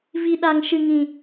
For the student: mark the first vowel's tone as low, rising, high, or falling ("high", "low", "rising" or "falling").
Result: low